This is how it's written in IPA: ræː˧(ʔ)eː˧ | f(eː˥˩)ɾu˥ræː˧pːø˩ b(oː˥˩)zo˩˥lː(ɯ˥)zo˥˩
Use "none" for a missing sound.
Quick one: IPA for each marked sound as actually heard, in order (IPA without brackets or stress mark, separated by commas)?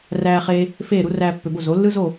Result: χ, eː˥˩, o˥˩, ɯ˥